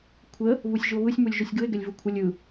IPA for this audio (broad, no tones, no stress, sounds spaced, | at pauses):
kʷʰ ə | β u sʲ ʒ u o̯ β ɯ sʲ m u lʲ ʒ u sʲ ɡ ɯ e̯ ɡ ɛ lʲ v u kʷʰ ə lʲ ɯ